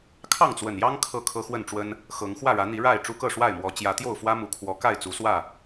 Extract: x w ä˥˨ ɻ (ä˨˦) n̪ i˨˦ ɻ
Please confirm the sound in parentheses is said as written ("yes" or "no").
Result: yes